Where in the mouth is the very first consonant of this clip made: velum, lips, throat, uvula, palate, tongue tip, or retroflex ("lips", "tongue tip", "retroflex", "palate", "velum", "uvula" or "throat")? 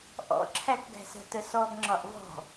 throat